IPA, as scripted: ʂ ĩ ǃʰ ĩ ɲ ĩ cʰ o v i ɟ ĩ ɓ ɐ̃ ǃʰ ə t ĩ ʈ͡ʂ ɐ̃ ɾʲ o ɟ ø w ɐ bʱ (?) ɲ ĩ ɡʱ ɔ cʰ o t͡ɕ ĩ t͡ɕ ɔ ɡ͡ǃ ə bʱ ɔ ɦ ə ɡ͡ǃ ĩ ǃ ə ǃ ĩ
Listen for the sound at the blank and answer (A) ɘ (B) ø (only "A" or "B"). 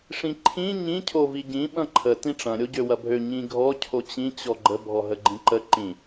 B